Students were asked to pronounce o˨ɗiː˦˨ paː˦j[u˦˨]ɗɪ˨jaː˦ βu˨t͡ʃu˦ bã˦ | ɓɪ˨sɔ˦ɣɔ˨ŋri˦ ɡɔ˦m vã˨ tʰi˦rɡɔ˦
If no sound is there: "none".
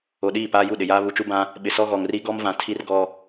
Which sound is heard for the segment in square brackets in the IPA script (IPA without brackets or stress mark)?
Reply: u˦˨